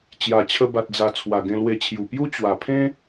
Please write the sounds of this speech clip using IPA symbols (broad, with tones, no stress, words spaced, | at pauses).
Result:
t͡ɕja˨˩t͡ɕʰə˧ba˨t̚d͡za˨˩ t͡sʰwa˨˩ɡẽ˧lwe˧t͡ɕʰju˨˩ pju˦ t͡ɕwa˨˩pʰẽ˦